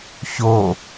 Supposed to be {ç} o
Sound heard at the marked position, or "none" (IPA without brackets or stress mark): ç